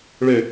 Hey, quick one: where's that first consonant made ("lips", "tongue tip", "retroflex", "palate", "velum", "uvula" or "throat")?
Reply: retroflex